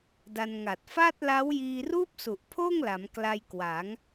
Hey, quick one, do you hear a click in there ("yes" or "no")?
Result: no